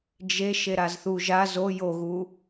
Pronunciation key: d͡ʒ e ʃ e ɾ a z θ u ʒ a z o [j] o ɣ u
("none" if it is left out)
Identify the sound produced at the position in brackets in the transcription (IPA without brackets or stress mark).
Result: j